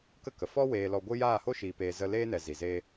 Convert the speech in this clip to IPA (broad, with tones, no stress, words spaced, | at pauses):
kə˦kə˨ fɔ˦ weː˧lɔ˧ɡʷɨ˦ jaː˦˨ho˦ʃiː˨peː˨ zə˧ leː˦nɛ˨ zi˨ze˦